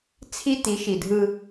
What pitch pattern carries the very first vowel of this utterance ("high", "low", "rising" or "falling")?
high